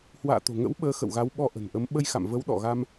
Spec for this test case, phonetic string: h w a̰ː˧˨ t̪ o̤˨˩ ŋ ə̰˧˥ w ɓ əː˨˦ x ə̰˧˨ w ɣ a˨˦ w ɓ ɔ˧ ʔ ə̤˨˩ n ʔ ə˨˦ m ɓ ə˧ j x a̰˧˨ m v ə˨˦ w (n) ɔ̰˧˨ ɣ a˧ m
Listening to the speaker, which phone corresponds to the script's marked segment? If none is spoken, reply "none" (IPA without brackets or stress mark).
ɗ